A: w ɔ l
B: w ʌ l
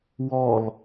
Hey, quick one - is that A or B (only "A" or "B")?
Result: A